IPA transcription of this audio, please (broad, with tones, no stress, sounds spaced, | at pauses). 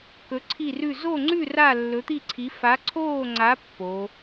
k ɵ˧˥ ǀʰ i˥˧ r ʉ˥˧ z o˥˧ ŋ͡ǀ ʉ˥˧ r a˥˧ lː ɵ˧˥ t̪ i˥˧ ǀʰ i˧˥ f a˧˥ ǀʰ oː˥˧ ŋ͡ǀ a˧˥ pː o˧˥